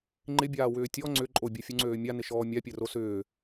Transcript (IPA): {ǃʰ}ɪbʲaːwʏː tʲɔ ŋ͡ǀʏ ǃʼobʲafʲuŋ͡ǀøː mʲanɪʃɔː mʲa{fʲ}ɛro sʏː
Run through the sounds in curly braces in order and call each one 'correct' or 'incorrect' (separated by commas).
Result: incorrect, incorrect